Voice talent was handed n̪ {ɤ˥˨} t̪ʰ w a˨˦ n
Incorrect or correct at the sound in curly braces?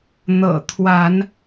incorrect: ɤ̰˨˩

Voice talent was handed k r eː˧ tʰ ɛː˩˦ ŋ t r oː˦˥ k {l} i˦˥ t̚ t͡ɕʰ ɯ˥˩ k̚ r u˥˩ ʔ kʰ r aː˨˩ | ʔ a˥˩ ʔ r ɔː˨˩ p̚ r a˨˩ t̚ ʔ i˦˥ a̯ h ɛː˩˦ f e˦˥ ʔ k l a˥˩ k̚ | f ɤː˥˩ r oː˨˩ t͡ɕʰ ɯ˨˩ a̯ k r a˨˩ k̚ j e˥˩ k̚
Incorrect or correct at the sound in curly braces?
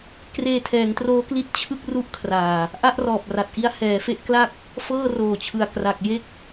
correct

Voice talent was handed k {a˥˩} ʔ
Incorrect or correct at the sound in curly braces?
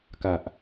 incorrect: a˨˩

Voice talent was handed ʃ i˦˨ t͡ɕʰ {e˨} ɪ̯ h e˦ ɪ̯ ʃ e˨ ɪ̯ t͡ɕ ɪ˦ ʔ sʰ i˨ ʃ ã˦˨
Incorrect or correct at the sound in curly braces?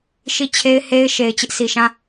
incorrect: e˦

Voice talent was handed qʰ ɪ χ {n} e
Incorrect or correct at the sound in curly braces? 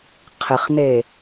correct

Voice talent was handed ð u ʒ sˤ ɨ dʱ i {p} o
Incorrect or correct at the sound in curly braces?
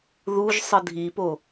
correct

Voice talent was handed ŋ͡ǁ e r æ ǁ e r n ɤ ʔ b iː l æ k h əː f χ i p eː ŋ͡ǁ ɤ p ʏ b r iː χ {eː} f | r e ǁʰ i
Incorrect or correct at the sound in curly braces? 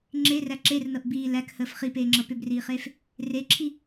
correct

